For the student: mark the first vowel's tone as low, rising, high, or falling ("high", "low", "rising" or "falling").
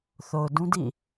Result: low